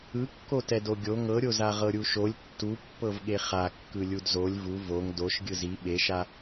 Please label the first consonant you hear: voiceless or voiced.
voiceless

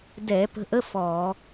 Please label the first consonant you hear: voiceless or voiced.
voiced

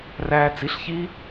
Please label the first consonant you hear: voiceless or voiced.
voiced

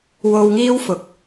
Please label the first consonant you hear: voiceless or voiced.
voiced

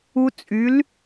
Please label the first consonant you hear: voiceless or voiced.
voiceless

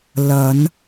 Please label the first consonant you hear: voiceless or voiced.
voiced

